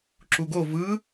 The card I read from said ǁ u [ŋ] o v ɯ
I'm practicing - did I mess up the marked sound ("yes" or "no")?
yes